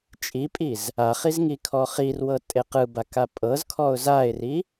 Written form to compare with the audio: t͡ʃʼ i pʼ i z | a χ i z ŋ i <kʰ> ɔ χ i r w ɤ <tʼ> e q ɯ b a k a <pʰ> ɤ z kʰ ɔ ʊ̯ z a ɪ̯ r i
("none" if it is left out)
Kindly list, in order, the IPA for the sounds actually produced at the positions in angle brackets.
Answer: kʰ, tʼ, pʼ

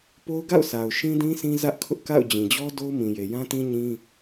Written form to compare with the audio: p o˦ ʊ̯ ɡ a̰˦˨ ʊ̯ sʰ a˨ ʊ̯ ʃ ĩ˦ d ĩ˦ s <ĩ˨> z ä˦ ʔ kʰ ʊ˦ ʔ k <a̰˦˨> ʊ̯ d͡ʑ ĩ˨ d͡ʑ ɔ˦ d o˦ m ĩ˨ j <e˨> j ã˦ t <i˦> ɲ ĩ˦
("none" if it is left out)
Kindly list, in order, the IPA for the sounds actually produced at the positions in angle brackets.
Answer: ĩ˦, a̰˦˨, e˨, ĩ˦

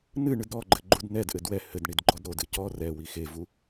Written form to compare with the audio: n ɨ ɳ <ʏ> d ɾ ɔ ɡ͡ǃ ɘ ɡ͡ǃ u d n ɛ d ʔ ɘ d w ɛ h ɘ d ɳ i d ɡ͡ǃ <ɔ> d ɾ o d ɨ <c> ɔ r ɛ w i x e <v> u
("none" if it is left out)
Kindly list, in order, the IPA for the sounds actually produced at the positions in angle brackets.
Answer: ɨ, ɔ, c, v

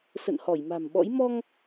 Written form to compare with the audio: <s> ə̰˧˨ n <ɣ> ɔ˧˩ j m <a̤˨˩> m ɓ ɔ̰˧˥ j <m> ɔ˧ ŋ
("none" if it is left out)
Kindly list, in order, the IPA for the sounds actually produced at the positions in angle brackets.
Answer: s, h, a̤˨˩, m

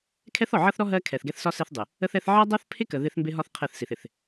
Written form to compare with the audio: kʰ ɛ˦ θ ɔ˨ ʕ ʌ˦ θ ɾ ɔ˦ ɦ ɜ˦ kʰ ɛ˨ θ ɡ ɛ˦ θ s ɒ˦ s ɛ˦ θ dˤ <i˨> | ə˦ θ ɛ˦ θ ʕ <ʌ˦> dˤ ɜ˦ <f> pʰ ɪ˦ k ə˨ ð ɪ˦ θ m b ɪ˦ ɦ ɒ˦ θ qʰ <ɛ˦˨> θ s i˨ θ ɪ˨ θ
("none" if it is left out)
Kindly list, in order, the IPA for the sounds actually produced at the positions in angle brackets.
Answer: ɪ˨, ʌ˦, θ, ɛ˦˨

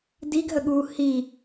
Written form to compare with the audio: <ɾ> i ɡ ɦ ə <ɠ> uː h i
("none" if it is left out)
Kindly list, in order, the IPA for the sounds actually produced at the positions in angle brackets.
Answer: d, ɠ

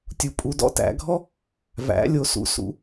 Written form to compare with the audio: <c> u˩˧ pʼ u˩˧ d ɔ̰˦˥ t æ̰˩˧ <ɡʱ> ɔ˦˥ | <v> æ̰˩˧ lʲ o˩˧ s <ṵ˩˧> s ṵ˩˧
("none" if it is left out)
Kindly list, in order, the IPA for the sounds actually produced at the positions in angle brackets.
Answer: tʲ, ɡʱ, v, ṵ˩˧

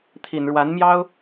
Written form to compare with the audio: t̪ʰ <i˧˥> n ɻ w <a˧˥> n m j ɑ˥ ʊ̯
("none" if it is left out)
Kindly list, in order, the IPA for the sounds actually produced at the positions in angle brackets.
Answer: i˨˩, a˧˥

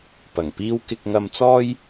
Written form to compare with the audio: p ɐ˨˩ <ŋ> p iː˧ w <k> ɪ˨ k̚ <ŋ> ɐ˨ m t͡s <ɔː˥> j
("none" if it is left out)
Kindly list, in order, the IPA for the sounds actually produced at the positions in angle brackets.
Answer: ŋ, k, ŋ, ɔː˧

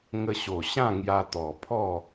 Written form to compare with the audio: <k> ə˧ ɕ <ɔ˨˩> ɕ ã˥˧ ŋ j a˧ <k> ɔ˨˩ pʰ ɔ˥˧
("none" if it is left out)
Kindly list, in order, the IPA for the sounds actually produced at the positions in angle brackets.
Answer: ŋ, o˨˩, t̪

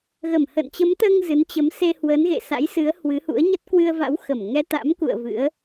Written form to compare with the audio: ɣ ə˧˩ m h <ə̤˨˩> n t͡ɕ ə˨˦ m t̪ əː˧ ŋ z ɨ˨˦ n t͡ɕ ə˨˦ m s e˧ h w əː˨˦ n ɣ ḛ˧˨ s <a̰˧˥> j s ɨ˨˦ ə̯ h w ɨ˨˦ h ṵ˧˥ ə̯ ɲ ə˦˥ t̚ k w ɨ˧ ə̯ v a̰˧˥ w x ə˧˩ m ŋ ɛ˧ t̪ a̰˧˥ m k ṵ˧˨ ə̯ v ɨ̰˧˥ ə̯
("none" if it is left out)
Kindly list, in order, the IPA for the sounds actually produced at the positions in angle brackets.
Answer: ə̰˧˨, a̰˧˥

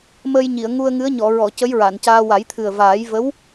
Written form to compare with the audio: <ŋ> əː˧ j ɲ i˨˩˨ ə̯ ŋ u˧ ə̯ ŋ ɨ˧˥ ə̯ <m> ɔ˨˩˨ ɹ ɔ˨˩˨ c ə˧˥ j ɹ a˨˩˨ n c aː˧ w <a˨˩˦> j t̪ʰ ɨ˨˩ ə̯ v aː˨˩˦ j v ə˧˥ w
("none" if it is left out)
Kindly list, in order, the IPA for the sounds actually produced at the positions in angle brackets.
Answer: m, ɲ, a˨˩˦

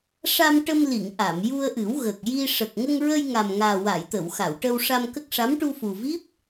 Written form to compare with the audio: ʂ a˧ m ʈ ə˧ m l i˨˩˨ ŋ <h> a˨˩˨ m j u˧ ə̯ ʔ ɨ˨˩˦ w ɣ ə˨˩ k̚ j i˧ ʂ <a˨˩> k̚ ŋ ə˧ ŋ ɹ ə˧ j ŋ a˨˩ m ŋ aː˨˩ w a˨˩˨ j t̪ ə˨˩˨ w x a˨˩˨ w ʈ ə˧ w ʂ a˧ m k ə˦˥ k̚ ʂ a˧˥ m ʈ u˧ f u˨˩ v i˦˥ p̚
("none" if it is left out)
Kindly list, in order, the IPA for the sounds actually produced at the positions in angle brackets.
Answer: ʔ, ə˨˩

